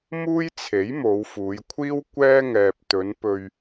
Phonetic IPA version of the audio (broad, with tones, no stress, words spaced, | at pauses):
muː˥jt͡sʰe˨˥j mo˨˧wfuː˨˧jkʷʰiː˥w kʷɛː˥ ŋɛː˨p̚t̪ɵ˨˧n pɵ˧ɥ